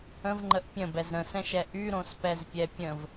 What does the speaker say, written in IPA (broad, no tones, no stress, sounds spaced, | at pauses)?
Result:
ə̃ v ŋ͡ǃ ə ʔ pʲ ə̃ b ɛ z ɾ ə̃ s ɛ̃ ʃ ɛ ʔ y ɾ õ s p ɛ z pʲ ɛ pʲ ə̃ v